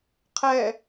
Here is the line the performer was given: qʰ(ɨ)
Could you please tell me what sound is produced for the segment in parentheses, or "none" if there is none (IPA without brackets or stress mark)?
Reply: ɛ